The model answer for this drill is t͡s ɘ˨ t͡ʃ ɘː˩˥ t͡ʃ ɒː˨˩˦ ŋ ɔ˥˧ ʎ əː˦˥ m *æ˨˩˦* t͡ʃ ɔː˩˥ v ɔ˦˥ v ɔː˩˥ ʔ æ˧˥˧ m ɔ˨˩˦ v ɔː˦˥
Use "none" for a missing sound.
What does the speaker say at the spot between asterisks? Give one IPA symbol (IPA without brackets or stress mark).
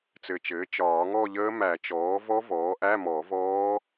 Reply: æ˨˩˦